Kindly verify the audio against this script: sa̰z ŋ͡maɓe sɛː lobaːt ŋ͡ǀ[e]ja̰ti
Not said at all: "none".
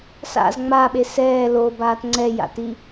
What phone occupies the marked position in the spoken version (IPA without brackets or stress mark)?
ɛ